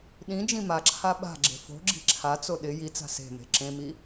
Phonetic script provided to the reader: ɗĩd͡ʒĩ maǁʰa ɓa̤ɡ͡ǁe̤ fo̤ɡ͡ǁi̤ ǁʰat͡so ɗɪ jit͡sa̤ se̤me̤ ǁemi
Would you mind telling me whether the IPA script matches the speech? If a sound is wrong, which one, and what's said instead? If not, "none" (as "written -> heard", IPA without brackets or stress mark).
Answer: e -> ẽ